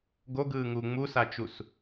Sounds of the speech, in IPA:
ɡoɡɯːŋuː ŋ͡musat͡ʃus

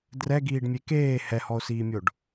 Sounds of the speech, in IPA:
drɛɡiːɖmʲe keː hɛhɔo̯siːmʲoɖ

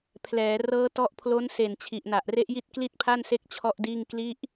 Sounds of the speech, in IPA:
pʰlɛː˩˦ rɤː˦˥tɔ˦˥ʔpʰlo˦˥n se˨˩nt͡ɕʰi˨˩ʔ na˨˩ʔre˦˥ʔji˥˩t̚ kli˥˩t̚pʰa˥˩nse˦˥k̚ t͡ɕʰɔ˥˩ʔdiː˥˩ŋ kli˦˥ʔ

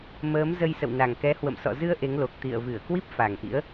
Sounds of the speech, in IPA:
məː˨˦mzə˧jsə̰˧˨w na˨˩ŋkɛ˨˦hwə̰˧˨msɔ̰˧˨ zɨ˧ə̯ ʔe˨˦ŋlo˨˩k̚ t̪ḭ˧˨ə̯vɨ˧˩ə̯kwi˦˥p̚ fa˨˩ŋʔḭ˧˥ə̯

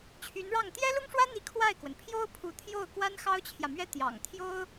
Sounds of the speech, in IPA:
t͡ɕʰy˧˥nɻɑ˥˩ŋ t̪jɛ˥lʊ˥ŋʂwä˥n̪i˧˥ kʰwa˥˩ɪ̯kwə˩n pʰjo˥ʊ̯ pʰu˧˥ t̪ʰjo˥˩ʊ̯ kwa˥nxɑ˥ʊ̯t͡ɕʰjä˨mɥɛ˥ t̪jɑ̰˨˩ŋt̪ʰjo˥ʊ̯

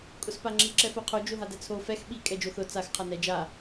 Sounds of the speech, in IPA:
kʼʊspaŋ͡ǁi ǁɛfoqʰo d͡ʒoɦadɛt͡sʰo fɛx ɓi kʼɛd͡ʒoθʊ t͡sax qʰanɛ d͡ʒa

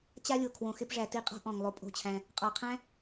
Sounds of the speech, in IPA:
t͡ɕa˦lʲo˨ kʰwõ˨xɪ˧pʐæ˨ ti˧qʼɔ̤˦ ʔɔ̃˨ŋlˠo˧ pʼo̤˦˨t͡ɕʰæ̃˧ | qʼɔ˨qʰæ̃˦

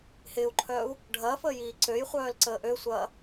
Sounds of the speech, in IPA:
hɪːu̯ǃʰœːu̯ | ɖʱɐːfəːjiː ǀøjχʷœːlǀəː ʔøsʷɐː

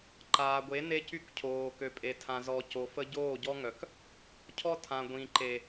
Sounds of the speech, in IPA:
ǃaː˨ɡʷe˨˦ ne˦cy˦kcʰoː˨ kø˨pʼe˨tʰã˨ zɔ˨ co˨fə˦ ɟoː˦˨ɟɔ˦ŋœ˨k | cʰɔ˦tʰã˨ ɡʷĩ˨ǃe˨

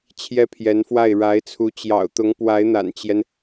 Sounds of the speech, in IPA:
t͡ɕʰjɛ˥pʰjɛ˧˥nfwa˥˩ɪ̯ ɻa˧˥ɪ̯t͡sʰu˧˥ t͡ɕjɑ̰˨˩ʊ̯t̪ʊ˧˥ŋ pwa˧˥ɪ̯n̪a̰˨˩nt͡ɕjɛ˦n

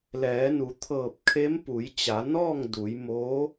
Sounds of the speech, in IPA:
lɛː˩˧nu˩˧t̪ʰɤː˧˩p̚ kʰe˧˥mpu˩˧jt͡ɕa˩˧nɔː˥˨ŋ du˩˧jmoː˧˥

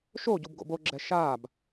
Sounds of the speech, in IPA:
ʃoɟub ɡo̰boɡ͡ǁɛ ʃaːb

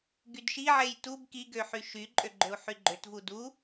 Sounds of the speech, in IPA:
ɡydʃiʕej tub kiɡø ħyʃyǃʼø ɡ͡ǃøu̯ħyɡ͡ǃøtvu du

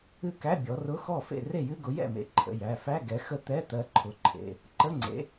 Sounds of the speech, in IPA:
ɨ˥˩kæ˧˥˧ bʲɔ˨˦rʊ˧˥˧xɔ˥˩fḛ˥˩ re˥˩jɨ˧˥˧ɡʊ˨˦jɛ̰˥˩ mḛ˨˦ǃʰə̰˩˧˩ jæ˩˧˩fæ˧˥˧ ɡɛ˨˦xə˥˩t̪ɛ˧˥˧t̪ɜ˨˦ ǃʰʊ˨˦ǃʰḛ˩˧˩ | ǃə˧˥˧ ŋ͡ǀḛ˨˦

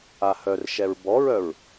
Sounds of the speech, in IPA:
ahœrʃɛɹ bɔɹœɹ

